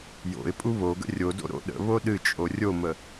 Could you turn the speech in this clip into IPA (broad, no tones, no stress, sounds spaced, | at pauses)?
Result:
j o̰ ɪ̯ pʼ u β o ɡ ə̰ rʲ o d o̰ ɾ o̰ ɗ ə̰ β o ɗ ɨ t͡ʃʼ o rʲ o m ə